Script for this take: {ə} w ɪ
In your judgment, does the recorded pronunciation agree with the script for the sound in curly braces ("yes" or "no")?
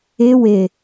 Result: no